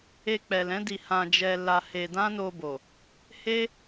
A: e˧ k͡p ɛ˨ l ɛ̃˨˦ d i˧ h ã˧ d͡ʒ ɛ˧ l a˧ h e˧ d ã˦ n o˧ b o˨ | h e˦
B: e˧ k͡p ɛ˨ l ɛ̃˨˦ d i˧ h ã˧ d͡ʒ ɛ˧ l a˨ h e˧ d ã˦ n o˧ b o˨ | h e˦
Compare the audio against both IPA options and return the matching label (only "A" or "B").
A